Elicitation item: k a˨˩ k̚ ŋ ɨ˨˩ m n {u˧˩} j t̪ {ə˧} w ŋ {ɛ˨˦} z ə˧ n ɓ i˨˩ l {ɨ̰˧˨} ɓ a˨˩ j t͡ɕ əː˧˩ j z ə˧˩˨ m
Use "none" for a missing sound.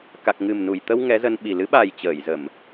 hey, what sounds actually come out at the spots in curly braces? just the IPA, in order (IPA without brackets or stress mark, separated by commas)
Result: u˧˩, ə˧, ɛ˨˦, ɨ˨˦